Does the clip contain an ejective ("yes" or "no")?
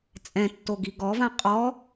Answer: yes